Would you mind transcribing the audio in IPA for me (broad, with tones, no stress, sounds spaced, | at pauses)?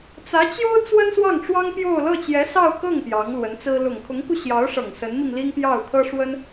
t͡s ä˧˥ t͡ɕ j o˥ ʊ̯ t͡s w ə˥ n s w ɑ˥˩ ŋ ʈ͡ʂ w ɑ˥ ŋ p j o˥˧ ʊ̯ l ɤ˥˩ t͡ɕ j ɛ˧˥ s ɑ˥˧ ʊ̯ k ɤ˥˩ ŋ p j ɑ˧˥ ŋ l w ə˧˥ n t͡s ɹ̩˥ l ʊ˨˩ ŋ kʰ ʊ˧˥ ŋ k u˧ ɕ j ɑ˧˥ ʊ̯ ʂ ɤ˨˩ ŋ s ə˧˥ n m i˧ ŋ l i˥ ŋ p j ɑ˥˩ ʊ̯ t̪ʰ ɤ˥ ʂ w ə˥ n